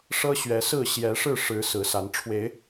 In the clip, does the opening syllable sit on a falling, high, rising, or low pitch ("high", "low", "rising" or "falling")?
high